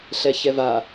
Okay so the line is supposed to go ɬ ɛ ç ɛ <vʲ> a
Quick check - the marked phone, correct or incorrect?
incorrect: v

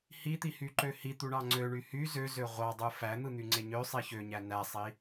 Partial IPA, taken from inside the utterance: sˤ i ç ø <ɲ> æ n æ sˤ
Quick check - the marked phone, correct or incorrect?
correct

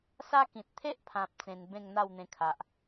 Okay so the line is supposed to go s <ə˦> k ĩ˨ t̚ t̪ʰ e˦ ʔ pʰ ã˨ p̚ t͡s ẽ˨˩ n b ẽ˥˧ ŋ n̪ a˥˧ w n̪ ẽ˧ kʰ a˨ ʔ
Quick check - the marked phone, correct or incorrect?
incorrect: a˦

